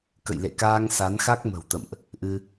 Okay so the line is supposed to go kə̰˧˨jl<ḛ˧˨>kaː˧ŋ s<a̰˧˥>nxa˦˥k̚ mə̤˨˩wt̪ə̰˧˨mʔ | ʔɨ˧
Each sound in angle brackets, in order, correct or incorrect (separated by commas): correct, incorrect